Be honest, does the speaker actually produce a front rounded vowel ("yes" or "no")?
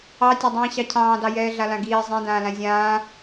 no